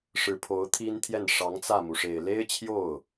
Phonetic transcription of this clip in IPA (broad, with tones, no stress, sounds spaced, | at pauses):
ʂ ɻ̩˧˥ pʰ o˧˥ ʊ̯ t̪ʰ i˥ n t̪ʰ j ɛ˥˩ n ʂ ɑ˧˥ ŋ t͡s ä˥˩ m u˩ ʂ e˨˩ ɪ̯ l e˥ ɪ̯ t͡ɕʰ j o˥˩ ʊ̯